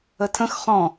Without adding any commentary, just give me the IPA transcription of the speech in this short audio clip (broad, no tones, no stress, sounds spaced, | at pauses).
ə tʰ ə̃ x χ ɔ̃